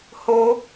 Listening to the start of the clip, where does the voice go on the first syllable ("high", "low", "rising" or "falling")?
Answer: high